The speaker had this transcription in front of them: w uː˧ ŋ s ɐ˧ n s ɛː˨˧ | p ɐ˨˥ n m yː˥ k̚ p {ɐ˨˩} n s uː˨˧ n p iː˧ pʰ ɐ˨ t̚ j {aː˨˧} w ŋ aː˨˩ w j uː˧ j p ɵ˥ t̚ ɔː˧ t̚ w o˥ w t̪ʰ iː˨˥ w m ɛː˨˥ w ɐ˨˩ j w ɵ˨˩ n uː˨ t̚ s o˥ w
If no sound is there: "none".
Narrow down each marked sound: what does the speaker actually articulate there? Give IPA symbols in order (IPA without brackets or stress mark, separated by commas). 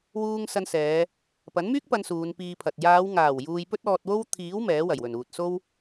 ɐ˧, aː˨˧